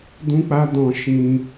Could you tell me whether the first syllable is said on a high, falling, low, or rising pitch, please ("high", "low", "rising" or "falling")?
high